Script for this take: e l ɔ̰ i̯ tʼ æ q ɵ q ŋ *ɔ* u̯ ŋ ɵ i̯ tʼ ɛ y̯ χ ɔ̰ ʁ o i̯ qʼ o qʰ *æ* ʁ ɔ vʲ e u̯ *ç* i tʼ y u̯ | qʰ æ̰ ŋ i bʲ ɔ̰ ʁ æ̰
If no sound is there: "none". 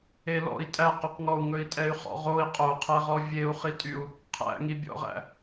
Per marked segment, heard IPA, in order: ɔ, æ, χ

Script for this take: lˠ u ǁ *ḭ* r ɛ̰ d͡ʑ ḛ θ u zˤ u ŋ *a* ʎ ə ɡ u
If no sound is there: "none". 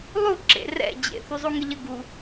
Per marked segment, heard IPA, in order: ḛ, ə

